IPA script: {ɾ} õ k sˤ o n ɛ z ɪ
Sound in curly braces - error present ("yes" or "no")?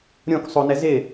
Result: yes